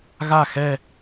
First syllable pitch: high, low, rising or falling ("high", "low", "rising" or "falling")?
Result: falling